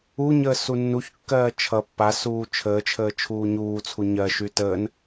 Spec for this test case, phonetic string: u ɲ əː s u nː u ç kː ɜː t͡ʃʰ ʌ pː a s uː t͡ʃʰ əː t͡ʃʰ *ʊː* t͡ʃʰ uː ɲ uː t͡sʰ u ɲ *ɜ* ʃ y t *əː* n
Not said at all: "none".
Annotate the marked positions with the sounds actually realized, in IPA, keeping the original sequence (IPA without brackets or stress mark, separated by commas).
əː, ɜ, əː